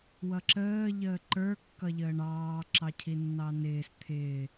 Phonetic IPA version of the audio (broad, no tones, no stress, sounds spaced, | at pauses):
w ʌ ǁ əː ʎ əː ǃ ə˞ kː ʌ ʎ əː ɳ ɑː ǁ ɑ cʰ i nː ɑ n ɪː s t̪ʰ ɪː